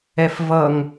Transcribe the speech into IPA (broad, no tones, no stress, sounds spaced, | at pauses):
ɛ f v ʌ ŋ